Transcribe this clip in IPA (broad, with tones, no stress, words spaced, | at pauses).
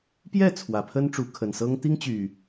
pjɛ˥˨ t͡sʰwä˨˩pʰə˦nʈ͡ʂu˨˦ kʰə˨˩nsɤ˦ŋ t̪i˦ŋt͡ɕy˨˩